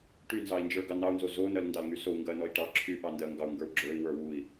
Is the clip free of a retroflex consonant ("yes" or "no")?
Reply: no